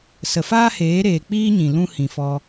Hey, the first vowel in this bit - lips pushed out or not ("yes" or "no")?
no